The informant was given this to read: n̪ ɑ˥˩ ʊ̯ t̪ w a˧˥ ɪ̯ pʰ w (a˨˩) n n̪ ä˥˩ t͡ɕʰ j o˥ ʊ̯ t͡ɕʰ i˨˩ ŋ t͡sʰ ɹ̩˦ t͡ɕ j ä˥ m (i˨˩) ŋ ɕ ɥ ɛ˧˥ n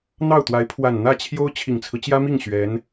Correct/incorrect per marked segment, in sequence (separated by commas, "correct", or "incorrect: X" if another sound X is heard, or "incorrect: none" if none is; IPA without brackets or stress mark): correct, incorrect: i˥˩